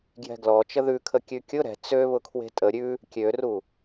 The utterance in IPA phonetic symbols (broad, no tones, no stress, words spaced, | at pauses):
ɡjɛ̤ɡlɔ t͡ʃəðʉkʰə kʲʉkʲʊ ɾɛ̤ t͡sø βʊkʰwe̤tʼə ɾʲʉ | kʲøru